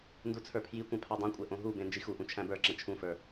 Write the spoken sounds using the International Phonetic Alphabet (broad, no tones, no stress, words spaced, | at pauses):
ndut͡sʰə˞pʰjikʷɛ̃ pʰadˤũkʷʼɛ ʔõɦubẽ nd͡ʒixuʔũ t͡ʃʰæ̃bə˞ǁɛ̃ t͡ʃʰũfə˞